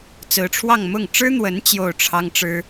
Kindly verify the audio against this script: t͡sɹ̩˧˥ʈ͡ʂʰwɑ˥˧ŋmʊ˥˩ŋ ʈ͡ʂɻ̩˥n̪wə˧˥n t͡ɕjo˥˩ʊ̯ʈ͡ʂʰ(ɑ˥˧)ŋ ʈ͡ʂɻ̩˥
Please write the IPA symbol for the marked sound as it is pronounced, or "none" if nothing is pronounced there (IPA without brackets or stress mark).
ɑ˥